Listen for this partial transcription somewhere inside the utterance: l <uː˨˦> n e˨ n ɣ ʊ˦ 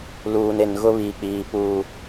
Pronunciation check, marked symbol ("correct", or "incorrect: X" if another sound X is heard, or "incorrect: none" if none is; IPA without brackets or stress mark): incorrect: uː˨